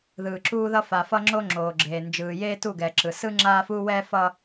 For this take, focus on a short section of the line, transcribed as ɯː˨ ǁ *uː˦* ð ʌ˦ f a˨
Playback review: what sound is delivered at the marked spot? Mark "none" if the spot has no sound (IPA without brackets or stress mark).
uː˦